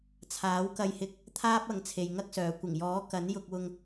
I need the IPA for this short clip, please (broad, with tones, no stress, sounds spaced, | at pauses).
t͡sʰ aː˨˥ w k ɐ˧ j h ɪ˧ k̚ | t̪ʰ aː˥ p̚ ɐ˨˧ ŋ t͡sʰ e˨ j ŋ ɐ˥ k̚ s œː˨ kʷ ɪ˨˩ ŋ j ɔː˨˥ k ɐ˨˥ n j ʊ˧ k̚ w ʊ˧ ŋ